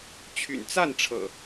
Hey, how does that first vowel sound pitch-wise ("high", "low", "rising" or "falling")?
low